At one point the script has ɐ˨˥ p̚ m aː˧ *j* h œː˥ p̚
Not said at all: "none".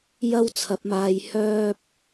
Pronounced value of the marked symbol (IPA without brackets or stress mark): j